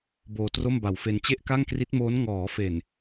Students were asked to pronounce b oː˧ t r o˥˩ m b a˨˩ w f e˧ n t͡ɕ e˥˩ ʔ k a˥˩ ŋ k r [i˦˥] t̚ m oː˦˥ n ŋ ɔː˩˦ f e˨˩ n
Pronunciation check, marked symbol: correct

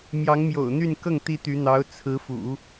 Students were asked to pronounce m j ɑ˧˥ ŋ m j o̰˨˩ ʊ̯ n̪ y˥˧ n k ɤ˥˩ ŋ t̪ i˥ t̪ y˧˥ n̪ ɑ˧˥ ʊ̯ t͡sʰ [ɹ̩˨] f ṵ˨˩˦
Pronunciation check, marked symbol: incorrect: ɹ̩˧˥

